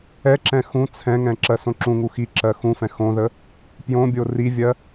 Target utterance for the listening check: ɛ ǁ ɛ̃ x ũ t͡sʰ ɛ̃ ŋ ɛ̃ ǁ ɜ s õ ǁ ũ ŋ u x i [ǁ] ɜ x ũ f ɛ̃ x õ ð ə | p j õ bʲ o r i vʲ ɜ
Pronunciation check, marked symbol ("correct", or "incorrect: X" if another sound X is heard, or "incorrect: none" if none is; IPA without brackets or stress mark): correct